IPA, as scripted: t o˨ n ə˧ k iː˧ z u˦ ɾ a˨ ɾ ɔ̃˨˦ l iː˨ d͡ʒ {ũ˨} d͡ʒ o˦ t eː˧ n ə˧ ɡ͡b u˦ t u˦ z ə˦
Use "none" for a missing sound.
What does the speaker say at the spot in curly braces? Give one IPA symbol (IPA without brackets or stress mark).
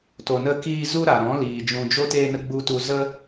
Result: ũ˨